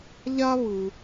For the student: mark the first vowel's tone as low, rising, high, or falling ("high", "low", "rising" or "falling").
high